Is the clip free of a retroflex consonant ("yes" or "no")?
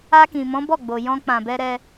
yes